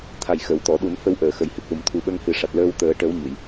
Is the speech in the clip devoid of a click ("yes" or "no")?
yes